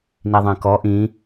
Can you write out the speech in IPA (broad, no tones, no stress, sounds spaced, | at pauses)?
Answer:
n i ðˤ ɛ̃ k ɔ ʔ ĩ